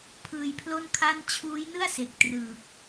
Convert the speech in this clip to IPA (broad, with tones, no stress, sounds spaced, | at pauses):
pʰ ɯː˧ j pʰ l o˥˩ n kʰ a˥˩ n t͡ɕʰ uː˦˥ j n ɯ˥˩ a̯ s e˨˩ k̚ t r ɯː˨˩ k̚